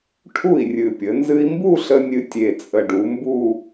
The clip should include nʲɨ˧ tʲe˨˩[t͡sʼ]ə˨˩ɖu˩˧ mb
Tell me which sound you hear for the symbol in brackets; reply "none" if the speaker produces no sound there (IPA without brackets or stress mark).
t͡sʼ